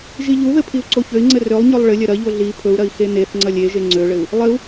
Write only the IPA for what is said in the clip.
ʒiʎuðɘ pʰiu̯ǀoçøi̯ŋ͡ǀɘ rølˠɲɵlˠ ɭɘlʲɐ ɾɐʎo ɮi pʰɵu̯ɾɐi̯ xeneθŋ͡ǀɐlʲ eʒe ŋ͡ǀøɭɘu̯ | lˠɘu̯

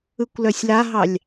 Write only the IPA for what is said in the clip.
ɯkʷlœsʲlaɦɑlʲ

